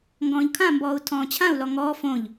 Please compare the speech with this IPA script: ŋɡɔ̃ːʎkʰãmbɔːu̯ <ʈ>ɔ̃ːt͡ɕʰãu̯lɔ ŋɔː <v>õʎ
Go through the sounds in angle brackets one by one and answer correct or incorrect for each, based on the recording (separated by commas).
incorrect, incorrect